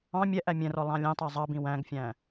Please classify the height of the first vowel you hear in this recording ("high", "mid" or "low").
low